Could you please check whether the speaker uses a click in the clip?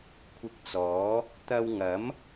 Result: no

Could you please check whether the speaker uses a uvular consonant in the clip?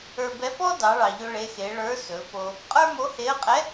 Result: yes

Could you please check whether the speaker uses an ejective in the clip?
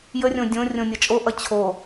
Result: yes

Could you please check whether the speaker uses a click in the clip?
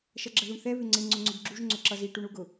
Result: yes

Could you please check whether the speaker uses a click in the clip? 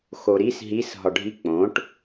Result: no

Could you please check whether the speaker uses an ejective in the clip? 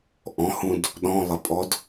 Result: yes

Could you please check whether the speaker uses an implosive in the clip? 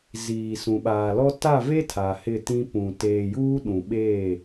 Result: yes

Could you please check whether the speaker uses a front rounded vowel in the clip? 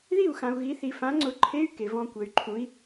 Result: yes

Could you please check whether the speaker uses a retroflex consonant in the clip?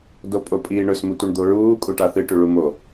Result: yes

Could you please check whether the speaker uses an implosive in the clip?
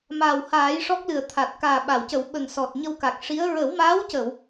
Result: yes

